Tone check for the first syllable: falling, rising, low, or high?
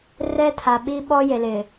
high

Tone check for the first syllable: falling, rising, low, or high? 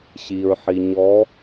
low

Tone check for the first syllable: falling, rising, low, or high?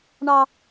high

